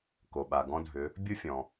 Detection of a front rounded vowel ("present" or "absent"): present